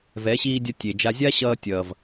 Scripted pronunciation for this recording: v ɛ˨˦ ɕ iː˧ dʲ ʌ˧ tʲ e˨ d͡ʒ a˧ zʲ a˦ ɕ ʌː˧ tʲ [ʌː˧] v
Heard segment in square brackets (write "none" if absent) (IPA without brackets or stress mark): ʌː˨